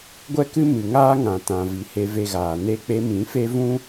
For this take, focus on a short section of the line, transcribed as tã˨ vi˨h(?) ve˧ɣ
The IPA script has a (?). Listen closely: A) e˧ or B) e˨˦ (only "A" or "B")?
A